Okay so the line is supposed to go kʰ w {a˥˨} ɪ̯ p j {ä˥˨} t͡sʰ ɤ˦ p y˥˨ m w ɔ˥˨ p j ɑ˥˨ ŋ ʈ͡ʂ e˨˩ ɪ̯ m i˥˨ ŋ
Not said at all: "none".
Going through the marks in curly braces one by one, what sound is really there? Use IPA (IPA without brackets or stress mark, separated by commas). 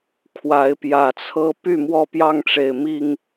a˨˦, ä˨˩